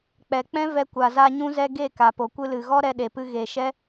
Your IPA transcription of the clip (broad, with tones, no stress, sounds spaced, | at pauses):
k͡p ɛ˨ k͡p ɛ̃˦ v ɛ˧ kʷ a˨ z a˧ ɲ ũ˧ z ɛ˧ ɡ e˦˨ k a˨ p o˨ kʷ ɨ˧ l ɨ˨ ɣ ɔ˦ ɾ ɛ˧ ɗ e˨ p ɨ˧ ɣ e˨ ʃ ɛ˦